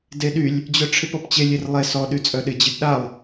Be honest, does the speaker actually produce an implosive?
yes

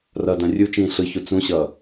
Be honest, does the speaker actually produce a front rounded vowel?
no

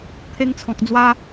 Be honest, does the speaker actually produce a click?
no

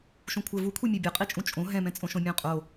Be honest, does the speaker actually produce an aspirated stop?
yes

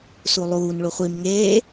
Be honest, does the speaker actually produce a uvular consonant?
yes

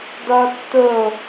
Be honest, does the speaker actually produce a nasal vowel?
no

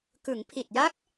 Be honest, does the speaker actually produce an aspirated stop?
yes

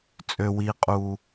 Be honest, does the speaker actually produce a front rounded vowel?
yes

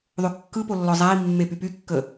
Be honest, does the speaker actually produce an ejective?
no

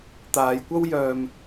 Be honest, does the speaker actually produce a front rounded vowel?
yes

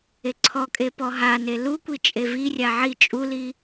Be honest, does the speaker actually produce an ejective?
yes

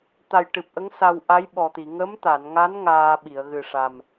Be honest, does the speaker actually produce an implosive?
yes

